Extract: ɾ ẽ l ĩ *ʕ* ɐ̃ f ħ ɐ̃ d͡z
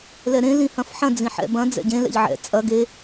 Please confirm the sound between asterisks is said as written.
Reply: no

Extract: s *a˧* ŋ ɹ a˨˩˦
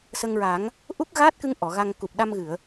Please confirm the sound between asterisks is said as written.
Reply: no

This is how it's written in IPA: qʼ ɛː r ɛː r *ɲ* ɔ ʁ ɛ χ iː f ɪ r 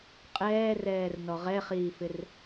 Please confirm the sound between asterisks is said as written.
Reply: no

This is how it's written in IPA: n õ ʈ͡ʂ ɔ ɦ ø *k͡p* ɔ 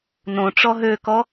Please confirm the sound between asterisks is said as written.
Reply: no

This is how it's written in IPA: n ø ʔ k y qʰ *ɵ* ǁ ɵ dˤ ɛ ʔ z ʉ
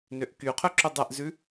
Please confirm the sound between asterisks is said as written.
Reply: yes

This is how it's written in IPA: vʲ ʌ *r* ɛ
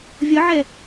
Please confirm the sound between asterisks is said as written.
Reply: no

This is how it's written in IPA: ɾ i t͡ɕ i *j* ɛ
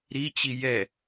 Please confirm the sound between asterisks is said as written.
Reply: yes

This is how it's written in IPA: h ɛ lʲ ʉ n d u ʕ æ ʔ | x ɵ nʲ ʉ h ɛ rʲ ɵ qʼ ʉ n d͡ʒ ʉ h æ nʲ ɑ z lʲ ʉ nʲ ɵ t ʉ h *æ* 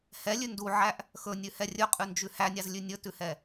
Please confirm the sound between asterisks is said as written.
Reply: no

